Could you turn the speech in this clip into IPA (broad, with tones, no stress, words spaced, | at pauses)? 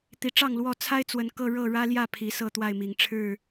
t̪i˨˦ʈ͡ʂɑ˥˨ŋlwɔ˥˨ t͡sʰa˦ɪ̯t͡swə˨˩n kɤ˥˨ ɻɤ˥˨ɻä˦ljä˥˨ pʰi˨˦sɤ˥˨t̪wa˥˨ɪ̯mi˨˩ŋ ʈ͡ʂʰɻ̩˥˨